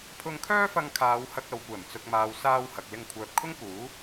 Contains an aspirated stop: yes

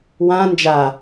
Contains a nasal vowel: yes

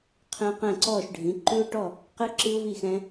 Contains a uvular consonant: yes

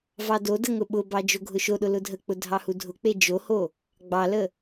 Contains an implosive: yes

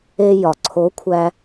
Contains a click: yes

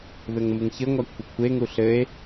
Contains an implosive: no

